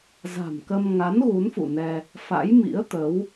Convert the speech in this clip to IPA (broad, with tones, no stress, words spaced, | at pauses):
za̤˨˩mkə˧m ŋa˨˦n ɣu˨˦nfṵ˧˨nɛ˧ | fa̰˧˥jmḭ˧˥ə̯t̪ə˨˦w